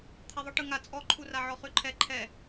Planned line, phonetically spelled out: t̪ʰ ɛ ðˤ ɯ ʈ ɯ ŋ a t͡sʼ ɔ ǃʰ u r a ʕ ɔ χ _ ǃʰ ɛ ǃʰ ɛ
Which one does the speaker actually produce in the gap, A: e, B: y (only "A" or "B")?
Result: B